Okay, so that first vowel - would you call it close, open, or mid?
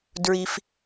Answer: close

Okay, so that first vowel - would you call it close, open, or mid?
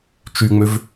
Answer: close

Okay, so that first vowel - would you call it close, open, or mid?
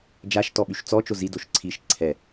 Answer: open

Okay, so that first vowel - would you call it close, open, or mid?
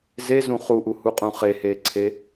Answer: mid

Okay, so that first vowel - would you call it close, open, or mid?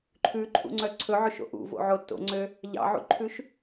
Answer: close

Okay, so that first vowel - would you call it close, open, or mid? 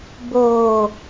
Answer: mid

